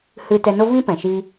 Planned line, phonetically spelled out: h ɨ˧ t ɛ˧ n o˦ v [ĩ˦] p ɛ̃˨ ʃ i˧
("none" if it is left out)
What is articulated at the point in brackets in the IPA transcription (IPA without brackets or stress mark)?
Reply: ĩ˦